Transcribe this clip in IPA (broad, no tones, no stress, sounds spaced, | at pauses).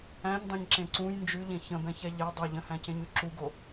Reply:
æ̃ ɲ dˤ ẽ ɲ ǁ ẽ ǀ ũ j n d͡ʒ ʉ ʎ ẽ ç ə̃ b ɛ̃ ç ɛ ʎ e dˤ ɛ ʎ ə̃ h æ̃ c ẽ ɲ ʉ ǁ u ɡ o